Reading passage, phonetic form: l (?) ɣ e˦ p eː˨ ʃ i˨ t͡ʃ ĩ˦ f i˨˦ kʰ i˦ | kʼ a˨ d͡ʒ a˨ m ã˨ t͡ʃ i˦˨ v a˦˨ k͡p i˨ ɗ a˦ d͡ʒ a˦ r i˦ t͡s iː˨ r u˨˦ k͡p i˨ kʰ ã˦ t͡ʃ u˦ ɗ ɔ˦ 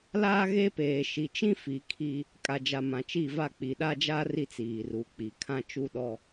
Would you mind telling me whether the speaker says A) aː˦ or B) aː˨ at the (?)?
A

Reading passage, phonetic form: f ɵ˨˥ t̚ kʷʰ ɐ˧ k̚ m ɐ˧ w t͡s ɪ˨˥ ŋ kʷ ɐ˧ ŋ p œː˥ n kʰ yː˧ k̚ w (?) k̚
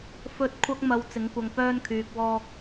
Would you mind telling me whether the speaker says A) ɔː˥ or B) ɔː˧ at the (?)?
A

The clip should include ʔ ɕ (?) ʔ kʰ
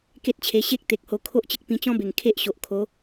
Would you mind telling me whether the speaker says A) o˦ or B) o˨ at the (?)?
B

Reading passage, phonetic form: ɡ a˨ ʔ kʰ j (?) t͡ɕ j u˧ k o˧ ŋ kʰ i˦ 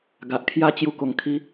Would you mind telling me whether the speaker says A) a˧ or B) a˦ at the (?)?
B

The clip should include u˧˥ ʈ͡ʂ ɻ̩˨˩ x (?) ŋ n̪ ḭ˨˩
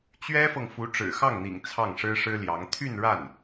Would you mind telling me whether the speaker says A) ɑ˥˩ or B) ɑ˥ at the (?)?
A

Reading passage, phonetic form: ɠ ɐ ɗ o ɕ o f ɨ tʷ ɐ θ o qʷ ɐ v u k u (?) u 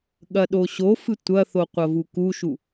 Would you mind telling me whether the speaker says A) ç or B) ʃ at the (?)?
B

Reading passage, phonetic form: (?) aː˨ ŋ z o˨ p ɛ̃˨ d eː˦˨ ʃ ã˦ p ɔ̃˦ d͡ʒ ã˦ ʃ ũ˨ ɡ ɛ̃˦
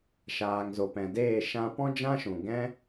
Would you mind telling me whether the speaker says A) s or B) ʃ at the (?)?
B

